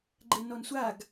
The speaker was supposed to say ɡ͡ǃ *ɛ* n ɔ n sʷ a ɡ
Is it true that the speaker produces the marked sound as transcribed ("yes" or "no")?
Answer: yes